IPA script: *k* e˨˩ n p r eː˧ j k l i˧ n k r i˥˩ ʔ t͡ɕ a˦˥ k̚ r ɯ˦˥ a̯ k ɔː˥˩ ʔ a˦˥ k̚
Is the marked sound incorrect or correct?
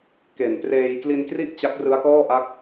correct